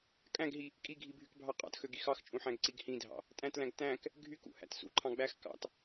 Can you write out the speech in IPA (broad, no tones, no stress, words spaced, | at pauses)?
kʼæ̃ɡɦi | kʼiɡʱibʱykbʱɑ qʼɑ̰txøɡi xɑxt͡ʃʼũħæ̃ɡǀiɡ hĩdʱɑ̰ | tʼæ̃tlæ̃ɡ tæ̃k | ɡʱykṵhæ̰t sṵǃʰɑ̃ ɡ͡bæx kɑ̰t